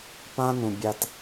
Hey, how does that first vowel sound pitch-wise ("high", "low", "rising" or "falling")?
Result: high